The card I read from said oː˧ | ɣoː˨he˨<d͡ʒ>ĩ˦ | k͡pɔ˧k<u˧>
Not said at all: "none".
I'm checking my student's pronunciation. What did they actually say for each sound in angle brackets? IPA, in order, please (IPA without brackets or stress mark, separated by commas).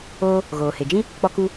d͡ʒ, u˧